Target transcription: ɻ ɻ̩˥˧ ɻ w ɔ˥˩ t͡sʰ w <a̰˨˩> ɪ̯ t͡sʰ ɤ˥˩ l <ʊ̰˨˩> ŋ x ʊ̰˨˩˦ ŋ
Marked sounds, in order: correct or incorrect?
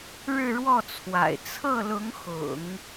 correct, incorrect: ʊ˧˥

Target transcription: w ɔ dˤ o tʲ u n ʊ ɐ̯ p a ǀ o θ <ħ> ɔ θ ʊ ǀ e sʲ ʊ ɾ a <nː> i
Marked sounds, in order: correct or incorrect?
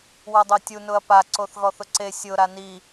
incorrect: ɣ, incorrect: n

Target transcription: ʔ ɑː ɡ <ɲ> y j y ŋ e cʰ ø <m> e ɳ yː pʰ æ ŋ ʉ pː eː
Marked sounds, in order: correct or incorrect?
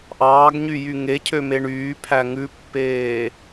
correct, correct

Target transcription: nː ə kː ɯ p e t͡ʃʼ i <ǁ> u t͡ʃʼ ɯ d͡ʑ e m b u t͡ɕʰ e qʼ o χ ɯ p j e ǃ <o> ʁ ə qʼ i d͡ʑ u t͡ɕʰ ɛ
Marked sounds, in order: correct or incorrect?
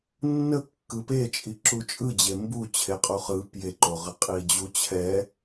correct, correct

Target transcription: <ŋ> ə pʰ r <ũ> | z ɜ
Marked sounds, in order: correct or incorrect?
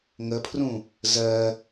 correct, correct

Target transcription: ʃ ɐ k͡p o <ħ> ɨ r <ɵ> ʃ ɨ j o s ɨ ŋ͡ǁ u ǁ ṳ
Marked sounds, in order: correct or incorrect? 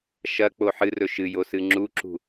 correct, correct

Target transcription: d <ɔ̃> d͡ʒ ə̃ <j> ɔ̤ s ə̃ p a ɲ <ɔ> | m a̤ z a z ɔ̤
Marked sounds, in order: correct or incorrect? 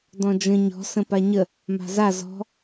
correct, incorrect: ɲ, incorrect: ə

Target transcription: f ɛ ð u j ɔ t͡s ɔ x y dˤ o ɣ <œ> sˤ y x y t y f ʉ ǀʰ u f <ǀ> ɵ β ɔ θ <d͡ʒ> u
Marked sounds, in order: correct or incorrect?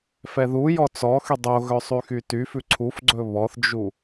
correct, incorrect: ɡ͡ǀ, correct

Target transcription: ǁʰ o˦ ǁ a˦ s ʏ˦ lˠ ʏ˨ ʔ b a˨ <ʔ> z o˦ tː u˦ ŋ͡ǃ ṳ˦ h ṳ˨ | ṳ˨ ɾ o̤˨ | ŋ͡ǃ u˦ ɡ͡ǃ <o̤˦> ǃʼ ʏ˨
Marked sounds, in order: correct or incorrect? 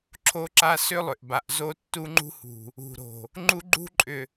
correct, incorrect: ṳ˦

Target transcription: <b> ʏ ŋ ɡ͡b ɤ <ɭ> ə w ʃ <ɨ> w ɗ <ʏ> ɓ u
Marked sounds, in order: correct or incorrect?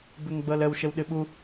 correct, incorrect: l, incorrect: ə, incorrect: ɨ

